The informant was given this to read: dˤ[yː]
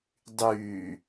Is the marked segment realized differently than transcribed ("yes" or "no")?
no